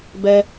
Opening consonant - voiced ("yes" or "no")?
yes